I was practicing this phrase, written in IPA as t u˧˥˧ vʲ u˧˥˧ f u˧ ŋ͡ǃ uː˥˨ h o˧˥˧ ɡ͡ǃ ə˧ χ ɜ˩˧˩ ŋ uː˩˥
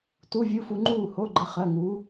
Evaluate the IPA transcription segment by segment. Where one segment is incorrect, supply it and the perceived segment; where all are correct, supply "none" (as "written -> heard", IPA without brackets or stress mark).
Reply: none